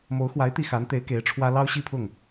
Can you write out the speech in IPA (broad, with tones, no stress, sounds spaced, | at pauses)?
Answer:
m o˧˥ ʊ̯ x w a˧˥ ɪ̯ t̪ i˥˩ x a˧˥ n t̪ e˧˥ ɪ̯ k e˧˥ ɪ̯ ʈ͡ʂʰ w ä˥ l ɑ˥ ʊ̯ ɕ i˥˧ pʰ ʊ˥˩ ŋ